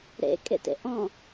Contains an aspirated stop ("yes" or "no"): no